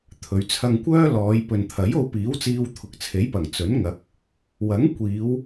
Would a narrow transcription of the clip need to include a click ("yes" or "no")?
no